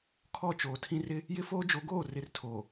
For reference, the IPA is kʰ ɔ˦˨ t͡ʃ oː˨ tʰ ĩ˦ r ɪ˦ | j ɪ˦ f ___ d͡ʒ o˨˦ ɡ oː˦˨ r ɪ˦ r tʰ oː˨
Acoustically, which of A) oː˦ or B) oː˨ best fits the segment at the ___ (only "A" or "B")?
A